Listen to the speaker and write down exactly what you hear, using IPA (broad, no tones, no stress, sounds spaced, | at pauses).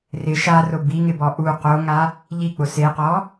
r ɪ ʃ a r ʊ b i ŋ ɪ b ɔ ʔ u q o ŋ a | ʎ i k͡p ʊ s e q ɔ